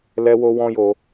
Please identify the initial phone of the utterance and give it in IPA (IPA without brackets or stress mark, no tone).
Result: l